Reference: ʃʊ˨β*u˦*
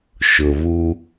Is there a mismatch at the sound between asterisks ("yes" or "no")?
no